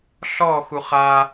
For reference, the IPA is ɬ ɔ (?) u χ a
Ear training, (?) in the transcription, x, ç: x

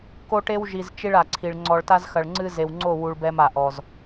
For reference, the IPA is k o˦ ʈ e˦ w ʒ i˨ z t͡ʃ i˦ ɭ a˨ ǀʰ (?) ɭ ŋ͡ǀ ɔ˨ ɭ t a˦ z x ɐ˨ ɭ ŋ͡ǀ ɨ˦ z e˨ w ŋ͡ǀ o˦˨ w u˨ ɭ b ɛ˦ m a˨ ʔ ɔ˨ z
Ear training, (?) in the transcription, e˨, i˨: i˨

